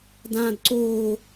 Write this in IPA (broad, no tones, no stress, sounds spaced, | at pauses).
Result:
d ãː d ǀ oː